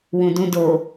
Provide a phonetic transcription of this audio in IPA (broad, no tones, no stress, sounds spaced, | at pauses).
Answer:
w ũ d ũ d o